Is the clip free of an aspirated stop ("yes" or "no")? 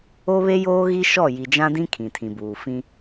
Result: no